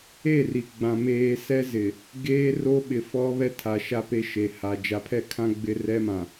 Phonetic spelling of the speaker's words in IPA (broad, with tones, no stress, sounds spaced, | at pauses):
e˦˨ r i˨ ɡ͡b ã˨ m eː˨ s ɛ˦ z ɪ˨ | ɡ eː˦ r o˦ ɓ ɪ˨ f ɔ˦ β ɛ˦ tʰ a˨ ʃ a˦ p e˦ ʃ e˨ h a˨ d͡ʒ a˨ pʰ ɛ˦˨ kʰ ã˦ ɡ͡b ɪ˦ r ɛ˦ m ã˨